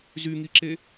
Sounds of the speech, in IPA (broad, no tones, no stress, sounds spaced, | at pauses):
z y ŋ i ǁ e